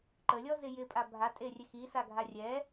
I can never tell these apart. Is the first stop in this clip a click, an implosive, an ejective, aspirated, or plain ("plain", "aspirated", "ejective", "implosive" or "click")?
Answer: click